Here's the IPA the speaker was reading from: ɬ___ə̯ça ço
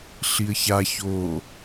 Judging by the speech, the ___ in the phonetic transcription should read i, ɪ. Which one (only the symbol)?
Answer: i